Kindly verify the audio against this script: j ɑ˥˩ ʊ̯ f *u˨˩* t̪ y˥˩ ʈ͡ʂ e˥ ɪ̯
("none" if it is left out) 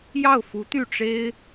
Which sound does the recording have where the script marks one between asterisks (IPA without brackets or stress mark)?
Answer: u˧˥